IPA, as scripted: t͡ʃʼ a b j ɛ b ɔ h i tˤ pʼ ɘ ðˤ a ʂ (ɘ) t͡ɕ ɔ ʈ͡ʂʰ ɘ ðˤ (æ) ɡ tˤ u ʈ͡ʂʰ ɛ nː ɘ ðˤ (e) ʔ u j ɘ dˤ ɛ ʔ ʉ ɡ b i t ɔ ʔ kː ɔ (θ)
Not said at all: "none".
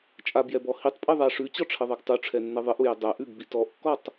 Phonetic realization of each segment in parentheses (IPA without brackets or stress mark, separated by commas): ʉ, ɛ, ɘ, tˤ